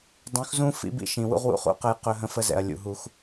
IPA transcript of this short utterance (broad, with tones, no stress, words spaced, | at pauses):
dˤũ˨˦xzũ˦ fḭ˨˦bḭ˦ʃĩ˨wṵ˦ʁ wṵ˦χṵ˦qə˦˨j qɵ˦ɦə̃˦ fə˦zɛ̰˨ɐ̯ lʲṵ˨ɦu˦x